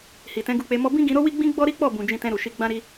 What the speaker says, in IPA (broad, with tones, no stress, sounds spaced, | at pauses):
h i˨ t ɛ̃˨˦ ɡ u˧ k͡p e˧ m ɔ˦ b ĩ˦ ɡ ĩ˧ ɾ o˦ w i˦ ɡ͡b ĩ˦ ɡ͡b ɔ˦ ɾ i˦ k͡p ɔ˦˨ b ũ˨ d͡ʒ ĩ˧ t ɛ̃˧ ɾ u˨ ʃ i˧ ɡ͡b ã˦ ɾ i˦